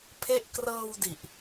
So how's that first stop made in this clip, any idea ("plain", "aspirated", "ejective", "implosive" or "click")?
aspirated